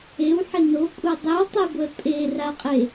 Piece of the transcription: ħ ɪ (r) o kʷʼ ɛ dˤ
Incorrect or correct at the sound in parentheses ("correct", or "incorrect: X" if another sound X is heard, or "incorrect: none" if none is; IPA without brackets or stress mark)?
incorrect: n